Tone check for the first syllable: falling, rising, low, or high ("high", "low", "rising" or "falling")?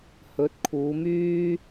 rising